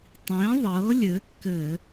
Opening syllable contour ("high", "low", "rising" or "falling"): rising